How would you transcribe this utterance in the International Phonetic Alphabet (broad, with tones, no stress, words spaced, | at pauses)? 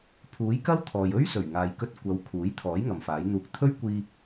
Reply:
pʰuː˨˥jkɐ˥wt̪ʰɔː˨j ɵ˥ɥsɵ˨˩ɥŋaː˨jkɵ˧t̚ kʷɐ˨˧w kʰuː˨˥jt̪ʰɔː˨˥j ŋɐ˨mfaː˨˥jn̪uː˧k̚ t̪ʰɵ˥ɥkʷiː˧